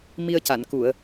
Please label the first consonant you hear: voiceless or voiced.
voiced